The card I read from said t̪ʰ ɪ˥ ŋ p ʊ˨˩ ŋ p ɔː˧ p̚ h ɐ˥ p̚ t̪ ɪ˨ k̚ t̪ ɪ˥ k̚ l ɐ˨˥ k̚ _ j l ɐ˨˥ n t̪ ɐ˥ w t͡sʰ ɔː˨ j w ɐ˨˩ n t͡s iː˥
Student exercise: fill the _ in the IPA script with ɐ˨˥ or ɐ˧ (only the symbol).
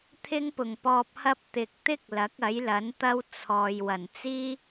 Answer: ɐ˨˥